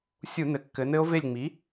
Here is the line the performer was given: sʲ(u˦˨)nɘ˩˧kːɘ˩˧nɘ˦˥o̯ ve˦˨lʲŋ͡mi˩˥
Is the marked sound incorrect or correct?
incorrect